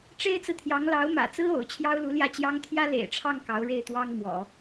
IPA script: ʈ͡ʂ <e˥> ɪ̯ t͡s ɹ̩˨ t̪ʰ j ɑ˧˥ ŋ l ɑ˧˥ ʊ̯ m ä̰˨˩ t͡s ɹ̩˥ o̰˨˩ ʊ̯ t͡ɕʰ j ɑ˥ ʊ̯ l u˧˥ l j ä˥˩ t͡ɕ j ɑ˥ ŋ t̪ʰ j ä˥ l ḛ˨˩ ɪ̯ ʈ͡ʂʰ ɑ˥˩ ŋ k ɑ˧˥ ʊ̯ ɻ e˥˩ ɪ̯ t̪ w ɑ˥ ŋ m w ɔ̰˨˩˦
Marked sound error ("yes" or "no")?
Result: no